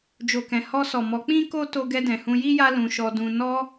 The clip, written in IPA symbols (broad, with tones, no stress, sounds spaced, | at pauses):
d͡ʒ o˨ k ɛ̃˨ h ɔ˧ s ɔ˨ m ɔ˨˦ k͡p ĩ˦ k o˦ t o˧ ɡ ɛ˧ d ɛ̃˨ h ũ˧ j i˦ j a˦ l ũ˧ ʃ ɔ˧ d ũ˧ n ɔ˦